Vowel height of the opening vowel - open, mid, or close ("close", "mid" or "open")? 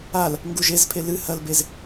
open